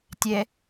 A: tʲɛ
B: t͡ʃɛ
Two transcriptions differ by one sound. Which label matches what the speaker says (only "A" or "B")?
A